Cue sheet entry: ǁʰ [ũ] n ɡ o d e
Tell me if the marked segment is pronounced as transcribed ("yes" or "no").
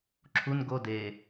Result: no